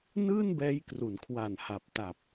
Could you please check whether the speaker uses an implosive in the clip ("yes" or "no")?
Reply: no